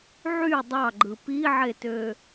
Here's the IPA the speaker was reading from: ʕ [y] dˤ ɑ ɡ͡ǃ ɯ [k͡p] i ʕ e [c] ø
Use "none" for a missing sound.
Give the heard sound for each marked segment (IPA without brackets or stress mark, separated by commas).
y, p, t